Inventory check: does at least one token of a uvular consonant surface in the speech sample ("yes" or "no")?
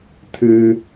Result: no